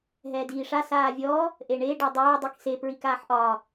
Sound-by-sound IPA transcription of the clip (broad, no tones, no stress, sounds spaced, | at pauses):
ɦ ɛː d iː ʂ a s aː vʲ ɔː | ʔ e ɳ e ɖ ɔ dˤ œː dˤ i k s e p ɹ i k aː ħ ʔ ɒː